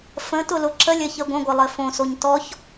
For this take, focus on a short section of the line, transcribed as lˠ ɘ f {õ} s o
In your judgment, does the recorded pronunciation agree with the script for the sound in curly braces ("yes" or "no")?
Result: yes